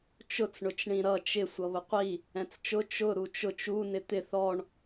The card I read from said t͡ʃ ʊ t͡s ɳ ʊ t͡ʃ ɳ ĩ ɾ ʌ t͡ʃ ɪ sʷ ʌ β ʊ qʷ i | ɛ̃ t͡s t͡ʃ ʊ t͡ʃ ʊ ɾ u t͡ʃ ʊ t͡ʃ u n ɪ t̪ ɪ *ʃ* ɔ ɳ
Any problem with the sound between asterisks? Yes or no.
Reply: yes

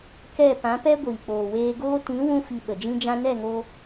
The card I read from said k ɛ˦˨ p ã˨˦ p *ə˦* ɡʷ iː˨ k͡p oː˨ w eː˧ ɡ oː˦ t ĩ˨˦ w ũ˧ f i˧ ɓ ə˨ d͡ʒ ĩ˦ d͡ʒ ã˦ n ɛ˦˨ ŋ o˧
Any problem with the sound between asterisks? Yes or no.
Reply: yes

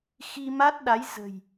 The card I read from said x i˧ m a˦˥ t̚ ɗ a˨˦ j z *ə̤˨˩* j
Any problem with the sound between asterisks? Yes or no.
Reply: no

